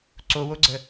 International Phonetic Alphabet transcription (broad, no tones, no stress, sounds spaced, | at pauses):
ǀ o w o ɡ͡ǀ ə